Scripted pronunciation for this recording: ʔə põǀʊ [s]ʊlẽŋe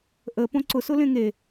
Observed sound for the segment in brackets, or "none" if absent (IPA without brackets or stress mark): s